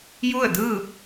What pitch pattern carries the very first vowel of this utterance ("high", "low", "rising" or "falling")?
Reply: falling